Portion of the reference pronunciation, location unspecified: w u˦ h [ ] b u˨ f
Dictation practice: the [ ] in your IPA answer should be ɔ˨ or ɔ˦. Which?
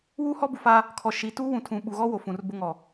ɔ˦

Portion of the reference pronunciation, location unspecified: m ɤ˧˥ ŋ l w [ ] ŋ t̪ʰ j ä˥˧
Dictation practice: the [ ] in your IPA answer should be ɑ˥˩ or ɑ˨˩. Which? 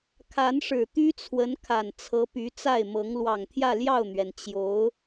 ɑ˨˩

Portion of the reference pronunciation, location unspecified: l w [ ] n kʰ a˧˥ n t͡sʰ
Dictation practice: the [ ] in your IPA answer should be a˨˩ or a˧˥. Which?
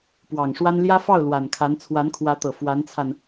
a˨˩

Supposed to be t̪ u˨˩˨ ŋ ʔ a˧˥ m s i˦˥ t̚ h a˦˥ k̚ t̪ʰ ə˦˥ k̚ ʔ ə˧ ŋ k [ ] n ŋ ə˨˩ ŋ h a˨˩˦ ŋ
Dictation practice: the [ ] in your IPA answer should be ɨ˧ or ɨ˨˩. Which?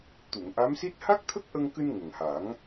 ɨ˧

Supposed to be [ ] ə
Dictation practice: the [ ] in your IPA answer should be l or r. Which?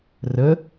r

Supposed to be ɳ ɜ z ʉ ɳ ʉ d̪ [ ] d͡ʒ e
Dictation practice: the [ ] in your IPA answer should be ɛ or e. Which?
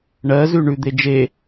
e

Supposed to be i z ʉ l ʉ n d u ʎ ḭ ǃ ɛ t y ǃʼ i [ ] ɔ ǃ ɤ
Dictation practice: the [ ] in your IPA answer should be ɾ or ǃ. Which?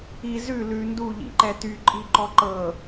ǃ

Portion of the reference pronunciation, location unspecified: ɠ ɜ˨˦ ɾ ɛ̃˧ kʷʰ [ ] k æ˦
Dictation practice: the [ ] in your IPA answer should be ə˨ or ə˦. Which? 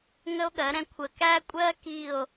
ə˨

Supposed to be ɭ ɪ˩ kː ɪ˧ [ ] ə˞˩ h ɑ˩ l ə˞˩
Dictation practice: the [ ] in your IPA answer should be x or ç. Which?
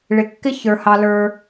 ç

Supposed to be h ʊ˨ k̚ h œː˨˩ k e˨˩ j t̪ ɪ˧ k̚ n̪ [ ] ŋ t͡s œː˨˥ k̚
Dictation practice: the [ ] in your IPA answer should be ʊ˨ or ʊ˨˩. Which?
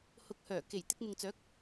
ʊ˨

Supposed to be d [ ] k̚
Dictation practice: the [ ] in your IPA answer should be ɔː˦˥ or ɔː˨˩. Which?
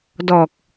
ɔː˨˩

